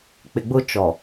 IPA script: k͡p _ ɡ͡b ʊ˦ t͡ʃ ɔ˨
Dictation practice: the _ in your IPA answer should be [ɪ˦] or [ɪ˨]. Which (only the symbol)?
ɪ˨